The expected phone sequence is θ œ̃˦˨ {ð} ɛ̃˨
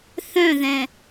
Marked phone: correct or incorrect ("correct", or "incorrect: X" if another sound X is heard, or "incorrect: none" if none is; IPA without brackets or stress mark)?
correct